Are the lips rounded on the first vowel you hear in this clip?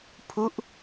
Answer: yes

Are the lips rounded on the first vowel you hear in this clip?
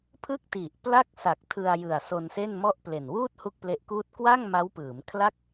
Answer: no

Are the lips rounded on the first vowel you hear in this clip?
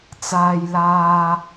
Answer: no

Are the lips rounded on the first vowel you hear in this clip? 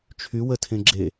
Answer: yes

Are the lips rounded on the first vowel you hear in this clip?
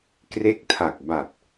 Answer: no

